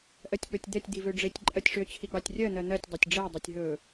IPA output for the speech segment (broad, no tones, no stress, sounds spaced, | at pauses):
ʔ ɜ tʲ k͡p ɵ tʲ d̪ ɛ tʲ d̪ i v ø ɖ͡ʐ e tʲ ǃʼ ɜ tʲ ʂ ø t͡ɕʰ i ɡ͡b ɑ tʲ rʲ ɜ n̪ ɜ n̪ ɜ tʲ dˤ ɛ tʲ ɖ͡ʐ ɛ dˤ ɛ tʲ ɦ ɵ